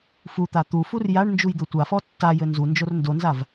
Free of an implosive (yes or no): yes